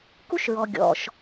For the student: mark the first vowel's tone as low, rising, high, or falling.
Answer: high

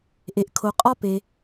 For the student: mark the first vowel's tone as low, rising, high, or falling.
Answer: low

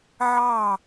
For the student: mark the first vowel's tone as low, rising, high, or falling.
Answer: falling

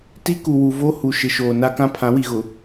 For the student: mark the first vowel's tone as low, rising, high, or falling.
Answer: high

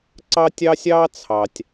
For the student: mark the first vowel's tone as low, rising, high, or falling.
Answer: high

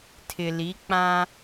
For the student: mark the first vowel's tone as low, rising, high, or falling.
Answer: low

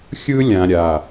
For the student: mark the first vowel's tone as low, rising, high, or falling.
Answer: high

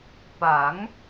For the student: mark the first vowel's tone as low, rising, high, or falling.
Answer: rising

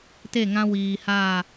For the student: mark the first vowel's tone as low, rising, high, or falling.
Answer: falling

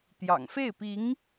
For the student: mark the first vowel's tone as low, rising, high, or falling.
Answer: low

